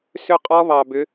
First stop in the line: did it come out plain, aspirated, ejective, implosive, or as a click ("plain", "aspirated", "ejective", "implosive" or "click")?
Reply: ejective